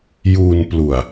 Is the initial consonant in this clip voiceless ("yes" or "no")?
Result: no